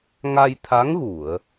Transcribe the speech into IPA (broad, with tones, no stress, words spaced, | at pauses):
ŋa˧jt̪ʰa˧˥ŋɣu˨˩˨ə̯